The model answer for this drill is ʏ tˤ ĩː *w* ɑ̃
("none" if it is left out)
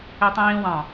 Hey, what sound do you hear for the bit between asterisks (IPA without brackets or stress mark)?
w